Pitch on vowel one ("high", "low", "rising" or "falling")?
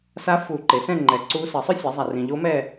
rising